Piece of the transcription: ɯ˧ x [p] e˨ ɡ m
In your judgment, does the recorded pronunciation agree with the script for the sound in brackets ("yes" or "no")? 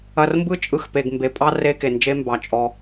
yes